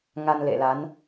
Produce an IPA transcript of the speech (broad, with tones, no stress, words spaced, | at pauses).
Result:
ŋa˧nlḛ˧˨la˨˦n